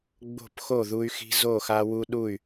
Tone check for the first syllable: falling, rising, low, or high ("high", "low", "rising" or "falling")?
falling